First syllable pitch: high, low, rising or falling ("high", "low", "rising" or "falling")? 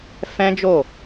high